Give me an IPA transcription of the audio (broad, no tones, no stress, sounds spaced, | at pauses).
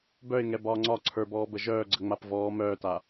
b œ ɪ̯ ŋ ɛ b ɒː ŋ͡ǀ ɒ ǀʰ ə˞ b ɔː b ə ʒ œː ɡ͡ǀ ə ŋ͡m a p v ɔː m œː t a